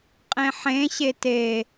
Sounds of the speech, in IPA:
qʼẽħẽ ɕete

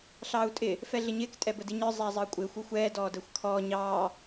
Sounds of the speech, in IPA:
ɬɑːu̯tʼɪ | fɛɮɪɲɪːk tʼɛbədiɲə˞ zˤɛːzˤəːkʷʼɪːxʷ uxʷɛː dɔːdəːxʷkʰɔː ɲɑː

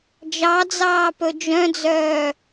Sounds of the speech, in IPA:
d͡ʒɑd͡zɑː pɵd͡ʒœ̃d͡zœː

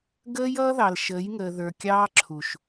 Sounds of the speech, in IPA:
ɡəː˦jʌː˦ ðɑ˨l ʃəː˨˦jŋəː˨ ðə˞˨kʲɑː˦ǁʰu˨ʃ

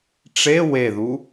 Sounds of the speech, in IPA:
ʈ͡ʂe weðu

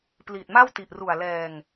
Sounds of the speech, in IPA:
pliː˨˩t̚ma˥˩wti˨˩ʔru˨˩a̯ lɛː˧ŋ

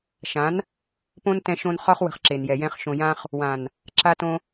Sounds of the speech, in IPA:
ʃã˨˦n | põ˦n tɛ̃˧ʃõ˧n χɒ˦χ wə̤˧χǁe˨njɛ˨jɛ̃˧χ ʃõ˨jã˧χ | wã˨n | ǁa˧tõ˧

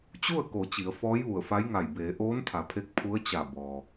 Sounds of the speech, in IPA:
t͡ɕu˥˨ə̯ko˩˧ t͡ɕi˩˧ə̯ fɔː˧˥jʋu˧˩ə̯fa˧˥jŋa˧˩j beː˩˧ʔoː˧˥nt̪ʰa˩˧pʰe˧k̚ pʰu˧˥ə̯t͡ɕa˧˩ bɔː˩

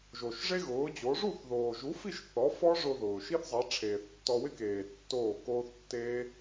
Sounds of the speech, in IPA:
ʒo˩ʃʐe˥ɣʊː˩˥d͡ʑo˩˥ ʐu˥˩θðoː˩ʒu˩˥fi˥˩ʃ θɔ˩˥ fɔ˥ ʐʊ˧ ðʊː˩ ʃi˥θzˤɛ˩˥ ʈ͡ʂʰeː˩θtːɔ˧wɪ˥keː˩ tːoː˥˩koː˥θ tːeː˥

